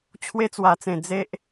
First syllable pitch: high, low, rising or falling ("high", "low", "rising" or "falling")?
high